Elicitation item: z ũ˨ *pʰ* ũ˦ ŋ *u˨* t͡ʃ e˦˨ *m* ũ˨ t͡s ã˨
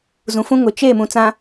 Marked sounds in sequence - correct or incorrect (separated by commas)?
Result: incorrect, incorrect, correct